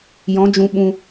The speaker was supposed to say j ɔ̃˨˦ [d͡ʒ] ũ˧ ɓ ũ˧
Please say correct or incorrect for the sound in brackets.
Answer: correct